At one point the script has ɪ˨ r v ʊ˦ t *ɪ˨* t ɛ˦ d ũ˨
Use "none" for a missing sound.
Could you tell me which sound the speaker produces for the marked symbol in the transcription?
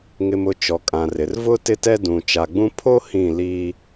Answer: ɪ˦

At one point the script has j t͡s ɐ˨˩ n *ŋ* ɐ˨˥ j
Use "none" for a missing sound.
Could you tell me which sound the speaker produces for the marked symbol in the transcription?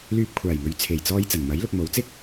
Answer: m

